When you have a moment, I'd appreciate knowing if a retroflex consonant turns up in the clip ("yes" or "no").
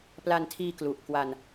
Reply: no